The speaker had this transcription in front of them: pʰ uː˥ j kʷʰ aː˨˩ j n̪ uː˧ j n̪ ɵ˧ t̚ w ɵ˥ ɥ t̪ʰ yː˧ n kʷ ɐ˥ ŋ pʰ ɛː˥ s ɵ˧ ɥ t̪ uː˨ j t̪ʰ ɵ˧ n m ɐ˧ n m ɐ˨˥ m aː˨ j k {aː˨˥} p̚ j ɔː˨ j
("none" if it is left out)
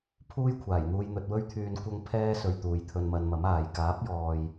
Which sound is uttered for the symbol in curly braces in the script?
aː˨˥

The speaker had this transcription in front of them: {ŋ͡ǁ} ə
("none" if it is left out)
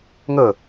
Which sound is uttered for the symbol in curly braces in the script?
ŋ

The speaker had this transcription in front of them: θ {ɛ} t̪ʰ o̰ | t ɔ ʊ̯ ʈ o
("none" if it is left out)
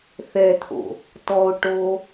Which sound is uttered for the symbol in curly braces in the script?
ɛ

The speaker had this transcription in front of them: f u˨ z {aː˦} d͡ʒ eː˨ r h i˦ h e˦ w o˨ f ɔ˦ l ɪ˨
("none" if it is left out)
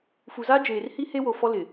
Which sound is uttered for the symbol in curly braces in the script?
aː˦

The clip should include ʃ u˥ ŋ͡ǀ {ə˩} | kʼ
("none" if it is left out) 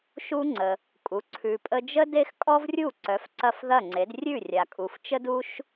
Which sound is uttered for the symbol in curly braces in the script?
ə˩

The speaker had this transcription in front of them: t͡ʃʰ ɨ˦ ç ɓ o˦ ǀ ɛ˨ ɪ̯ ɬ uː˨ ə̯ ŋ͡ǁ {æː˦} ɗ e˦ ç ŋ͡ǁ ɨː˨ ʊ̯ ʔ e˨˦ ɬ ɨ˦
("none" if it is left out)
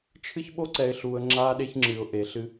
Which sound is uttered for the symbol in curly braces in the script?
aː˦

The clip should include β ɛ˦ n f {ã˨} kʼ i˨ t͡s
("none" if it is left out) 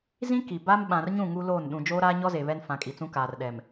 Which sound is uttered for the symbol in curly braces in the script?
ã˨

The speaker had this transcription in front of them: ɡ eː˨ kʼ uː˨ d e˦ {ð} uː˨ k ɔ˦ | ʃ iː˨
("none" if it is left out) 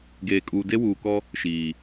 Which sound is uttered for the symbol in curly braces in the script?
w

